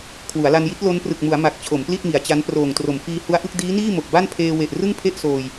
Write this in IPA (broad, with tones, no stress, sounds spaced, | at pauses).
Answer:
kʰ w u˩˦ a̯ l a˧ n j i˦˥ t̚ l o˦˥ n p r ɯ˨˩ k̚ m u˩˦ a̯ m a˨˩ k̚ t͡ɕʰ o˩˦ m p l i˥˩ t̚ m i˩˦ a̯ t͡ɕ a˦˥ n p r oː˨˩ ŋ t r o˩˦ m f iː˧ h u˧ a̯ ʔ ɯ˥˩ k̚ d iː˦˥ n iː˥˩ m o˨˩ k̚ b a˥˩ n pʰ eː˧ w e˨˩ ʔ r ɯ˥˩ ŋ pʰ e˥˩ ʔ s oː˧ j